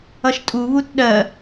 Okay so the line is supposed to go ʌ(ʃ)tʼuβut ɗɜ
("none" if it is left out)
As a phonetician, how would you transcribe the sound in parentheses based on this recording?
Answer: ʃ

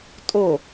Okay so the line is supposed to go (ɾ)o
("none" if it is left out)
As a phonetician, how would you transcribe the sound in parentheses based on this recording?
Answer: tʼ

